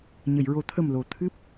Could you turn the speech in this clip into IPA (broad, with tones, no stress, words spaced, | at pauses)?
ɲə˨˩˨jɹo˨˩˦t̪ʰə˨˩m lo˨˩t̪ʰɨ˦˥p̚